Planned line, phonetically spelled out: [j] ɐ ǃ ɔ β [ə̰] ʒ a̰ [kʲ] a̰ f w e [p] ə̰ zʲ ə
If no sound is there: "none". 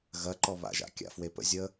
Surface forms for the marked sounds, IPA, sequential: ɣ, a̰, kʲ, p

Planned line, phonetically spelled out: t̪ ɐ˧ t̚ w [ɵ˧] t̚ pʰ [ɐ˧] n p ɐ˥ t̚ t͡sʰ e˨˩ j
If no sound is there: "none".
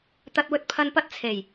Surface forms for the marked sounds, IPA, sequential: ɵ˧, ɐ˧

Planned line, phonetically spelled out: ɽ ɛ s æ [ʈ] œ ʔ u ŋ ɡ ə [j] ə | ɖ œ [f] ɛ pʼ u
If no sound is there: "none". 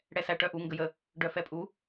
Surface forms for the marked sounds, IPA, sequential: ʈ, j, f

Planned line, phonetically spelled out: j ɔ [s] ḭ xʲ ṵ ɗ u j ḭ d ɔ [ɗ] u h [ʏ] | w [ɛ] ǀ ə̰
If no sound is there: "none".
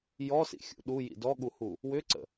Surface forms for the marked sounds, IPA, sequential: s, ɠ, u, ʏ

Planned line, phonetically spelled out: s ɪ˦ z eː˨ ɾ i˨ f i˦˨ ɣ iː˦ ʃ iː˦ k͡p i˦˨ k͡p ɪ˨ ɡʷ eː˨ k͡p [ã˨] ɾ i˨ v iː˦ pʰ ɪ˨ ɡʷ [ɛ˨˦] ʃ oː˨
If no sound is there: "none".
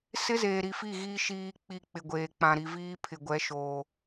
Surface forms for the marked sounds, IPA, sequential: ã˨, ɛ˨˦

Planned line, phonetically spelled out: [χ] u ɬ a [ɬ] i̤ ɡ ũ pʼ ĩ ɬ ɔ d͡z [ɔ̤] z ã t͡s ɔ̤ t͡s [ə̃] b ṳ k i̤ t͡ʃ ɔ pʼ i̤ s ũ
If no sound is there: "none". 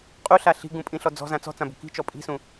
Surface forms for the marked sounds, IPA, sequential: qʼ, ɬ, ɔ̤, ã

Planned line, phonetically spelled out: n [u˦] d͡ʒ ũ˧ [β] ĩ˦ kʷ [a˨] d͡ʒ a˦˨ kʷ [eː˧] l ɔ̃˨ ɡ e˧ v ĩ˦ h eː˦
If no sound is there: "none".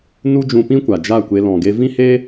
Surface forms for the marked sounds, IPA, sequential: u˦, p, a˨, e˧

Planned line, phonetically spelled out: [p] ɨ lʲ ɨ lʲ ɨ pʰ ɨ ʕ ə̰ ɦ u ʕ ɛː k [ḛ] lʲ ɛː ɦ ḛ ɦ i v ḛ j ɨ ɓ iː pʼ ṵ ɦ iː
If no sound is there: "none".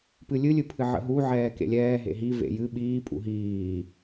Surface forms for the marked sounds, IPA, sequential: p, ḛ

